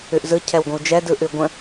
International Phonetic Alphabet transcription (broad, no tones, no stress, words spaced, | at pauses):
ʉʔzɯ cʰɛwɡʷə̃wd͡ʒɛ dɯʔʉɡʷə̃